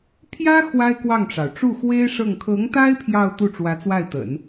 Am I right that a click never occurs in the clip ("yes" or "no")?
yes